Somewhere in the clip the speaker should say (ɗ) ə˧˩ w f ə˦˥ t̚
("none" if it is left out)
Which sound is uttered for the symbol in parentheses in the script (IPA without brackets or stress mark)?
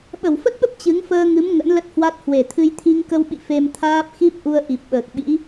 ɓ